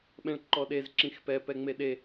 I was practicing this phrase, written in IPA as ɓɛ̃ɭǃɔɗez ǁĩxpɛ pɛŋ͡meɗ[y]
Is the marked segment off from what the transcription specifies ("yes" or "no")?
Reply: yes